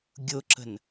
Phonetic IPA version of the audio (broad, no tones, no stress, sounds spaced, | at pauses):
ɡʲ ʊ ǁ ə̤ n